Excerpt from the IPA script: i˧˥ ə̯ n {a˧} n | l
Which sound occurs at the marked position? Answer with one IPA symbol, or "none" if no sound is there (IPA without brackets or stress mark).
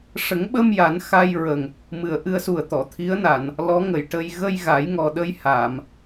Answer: a˨˩˨